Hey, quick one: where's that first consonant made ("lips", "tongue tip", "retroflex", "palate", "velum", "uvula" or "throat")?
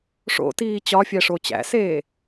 retroflex